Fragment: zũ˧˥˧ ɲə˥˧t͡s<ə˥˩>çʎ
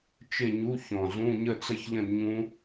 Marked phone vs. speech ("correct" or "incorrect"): incorrect